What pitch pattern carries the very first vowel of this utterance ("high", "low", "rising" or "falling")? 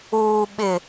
low